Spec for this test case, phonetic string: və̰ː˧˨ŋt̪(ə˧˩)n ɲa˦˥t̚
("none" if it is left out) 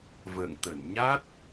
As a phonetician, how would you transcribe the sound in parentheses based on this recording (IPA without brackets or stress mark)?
ə˧˩